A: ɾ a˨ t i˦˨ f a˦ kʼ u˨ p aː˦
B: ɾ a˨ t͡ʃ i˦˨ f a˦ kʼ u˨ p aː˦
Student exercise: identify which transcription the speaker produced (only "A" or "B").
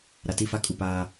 A